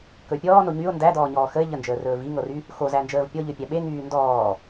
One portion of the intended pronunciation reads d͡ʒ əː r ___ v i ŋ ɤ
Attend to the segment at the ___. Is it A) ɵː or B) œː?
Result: A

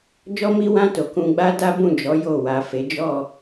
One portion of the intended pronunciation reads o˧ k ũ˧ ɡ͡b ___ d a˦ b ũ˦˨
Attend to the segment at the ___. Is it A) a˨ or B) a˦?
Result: B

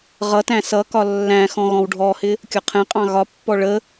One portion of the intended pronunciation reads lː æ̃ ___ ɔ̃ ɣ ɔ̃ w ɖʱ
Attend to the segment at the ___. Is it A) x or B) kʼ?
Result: A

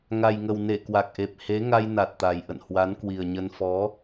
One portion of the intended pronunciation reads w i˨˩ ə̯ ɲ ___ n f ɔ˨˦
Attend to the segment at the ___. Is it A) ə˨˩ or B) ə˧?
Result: B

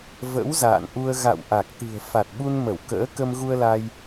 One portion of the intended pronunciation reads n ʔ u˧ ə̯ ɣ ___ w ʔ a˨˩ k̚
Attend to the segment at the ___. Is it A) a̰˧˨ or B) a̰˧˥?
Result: A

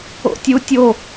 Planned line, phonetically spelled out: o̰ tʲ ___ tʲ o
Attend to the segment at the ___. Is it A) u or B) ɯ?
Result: A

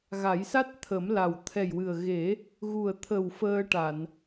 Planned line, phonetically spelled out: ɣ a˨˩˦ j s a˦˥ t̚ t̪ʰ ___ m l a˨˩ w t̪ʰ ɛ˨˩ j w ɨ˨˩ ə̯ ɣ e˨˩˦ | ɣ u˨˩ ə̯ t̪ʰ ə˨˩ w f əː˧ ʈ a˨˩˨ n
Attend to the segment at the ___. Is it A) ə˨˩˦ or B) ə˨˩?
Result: A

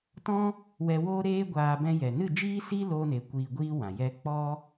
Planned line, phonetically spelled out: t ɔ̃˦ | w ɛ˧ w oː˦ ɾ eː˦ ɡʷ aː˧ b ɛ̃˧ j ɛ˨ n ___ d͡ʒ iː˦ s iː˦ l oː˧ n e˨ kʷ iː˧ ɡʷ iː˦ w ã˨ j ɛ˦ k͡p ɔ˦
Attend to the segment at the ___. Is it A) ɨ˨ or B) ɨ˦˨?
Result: B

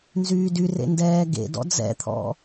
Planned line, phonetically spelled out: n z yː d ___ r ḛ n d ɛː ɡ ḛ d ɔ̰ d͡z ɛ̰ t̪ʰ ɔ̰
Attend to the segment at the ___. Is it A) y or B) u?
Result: A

